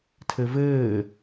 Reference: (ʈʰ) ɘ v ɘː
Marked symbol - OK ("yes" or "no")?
no